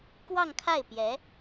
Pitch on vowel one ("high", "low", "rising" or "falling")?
falling